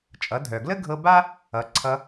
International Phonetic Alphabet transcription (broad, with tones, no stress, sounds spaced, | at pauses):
t͡ʃʼ ʌ˩˧ dʱ œ˩ ɡ l ə˥ ɡʱ ɤ˧ b a˥ | ʌ˩˧ ǀʰ ʌ˧